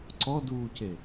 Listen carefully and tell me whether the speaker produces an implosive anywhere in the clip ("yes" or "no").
no